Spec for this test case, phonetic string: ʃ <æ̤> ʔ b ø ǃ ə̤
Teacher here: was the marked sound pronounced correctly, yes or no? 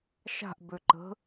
no